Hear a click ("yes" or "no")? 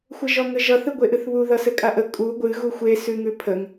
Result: no